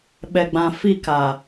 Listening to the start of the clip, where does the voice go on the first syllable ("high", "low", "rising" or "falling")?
low